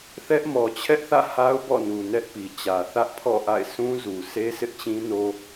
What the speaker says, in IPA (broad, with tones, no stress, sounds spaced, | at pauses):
θ ɛ˦ ʔ m ɔ˨ t͡ɕʰ ɛ˦ ʔ θ ä̰˦˨ h a˦ ʊ̯ b ɔ̰˦˨ n u˨ n ɛ˦ ʔ p i˨ t͡ɕ ä˨ θ ä˦ ʔ pʰ ɔ̰˦˨ ʔ a̰˦˨ ɪ̯ s ũ˦ z u˨ sʰ e˦ s ɪ˦ ʔ t͡ɕ ĩ˦ n o˦